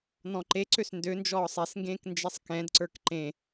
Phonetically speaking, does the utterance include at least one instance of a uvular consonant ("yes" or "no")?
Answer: no